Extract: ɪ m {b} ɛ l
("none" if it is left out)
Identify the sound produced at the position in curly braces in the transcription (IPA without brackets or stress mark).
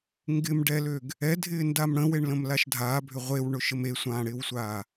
ɖ